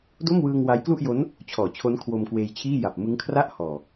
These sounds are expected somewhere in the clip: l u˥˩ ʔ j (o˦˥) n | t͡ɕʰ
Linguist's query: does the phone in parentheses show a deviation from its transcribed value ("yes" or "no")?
no